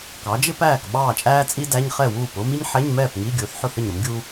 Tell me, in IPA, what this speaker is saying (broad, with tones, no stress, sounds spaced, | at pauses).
k ɑ˩˥ d͡ʒ ɪ˥ p æː˥˩ k ɓ ɑː˥˩ t͡ʃʼ æː˥ t͡sʼ i˥ d æ˧˥˧ ɲ χ ɛ˥˩ w uː˥˩ p ʊː˥ m i˥ ɲ ħ ɛ˧˥˧ ɲ m ɛː˥˩ p ŋ i˧˥˧ ɡʲ ʊː˩˥ θ ħ ʊ˥˩ θ ə˥˩ ɲ ɾ ʊ˩˥ m ɡʲ uː˥